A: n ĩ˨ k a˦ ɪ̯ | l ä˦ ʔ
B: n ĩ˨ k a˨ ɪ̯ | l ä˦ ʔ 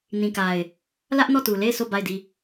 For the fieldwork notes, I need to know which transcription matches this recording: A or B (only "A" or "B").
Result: B